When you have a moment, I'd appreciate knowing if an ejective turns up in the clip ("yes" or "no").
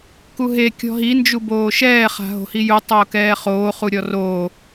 no